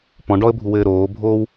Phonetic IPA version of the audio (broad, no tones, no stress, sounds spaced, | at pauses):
p ɔ̃ ɖ ɔ ə̯ bʱ u w ɘː ɾ oː bʱ oː w